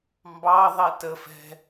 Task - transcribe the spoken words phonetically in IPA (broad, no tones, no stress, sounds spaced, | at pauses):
m b ɑ ðˤ ɛ t ə f ɛ̤